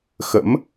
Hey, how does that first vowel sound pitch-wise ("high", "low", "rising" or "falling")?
rising